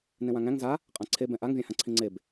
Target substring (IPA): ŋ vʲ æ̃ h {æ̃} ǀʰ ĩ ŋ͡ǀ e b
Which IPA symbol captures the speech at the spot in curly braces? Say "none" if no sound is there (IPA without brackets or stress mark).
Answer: ã